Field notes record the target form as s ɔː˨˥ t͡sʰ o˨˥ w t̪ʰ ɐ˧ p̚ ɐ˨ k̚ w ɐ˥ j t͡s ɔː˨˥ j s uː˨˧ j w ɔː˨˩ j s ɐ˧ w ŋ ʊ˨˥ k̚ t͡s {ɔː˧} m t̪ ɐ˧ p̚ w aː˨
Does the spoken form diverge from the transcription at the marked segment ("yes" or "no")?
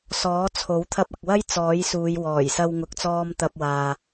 no